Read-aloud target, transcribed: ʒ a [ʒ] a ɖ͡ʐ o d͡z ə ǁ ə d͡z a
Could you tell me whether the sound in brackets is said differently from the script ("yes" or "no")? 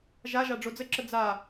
no